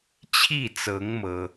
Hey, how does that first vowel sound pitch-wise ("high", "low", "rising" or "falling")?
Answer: falling